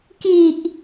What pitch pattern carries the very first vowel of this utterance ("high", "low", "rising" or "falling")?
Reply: low